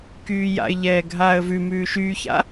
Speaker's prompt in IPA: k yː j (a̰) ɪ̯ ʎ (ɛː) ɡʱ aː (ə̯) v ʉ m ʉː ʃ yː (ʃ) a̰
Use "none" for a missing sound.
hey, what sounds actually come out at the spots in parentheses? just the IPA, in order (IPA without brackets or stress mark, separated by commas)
a̰, ɛː, ə̯, ç